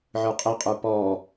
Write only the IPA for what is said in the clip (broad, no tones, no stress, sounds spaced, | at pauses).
ʕ ə˞ qʼ ɛ qʼ ə˞ p ɔ